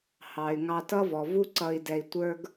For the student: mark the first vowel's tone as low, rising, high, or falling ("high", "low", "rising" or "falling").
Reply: low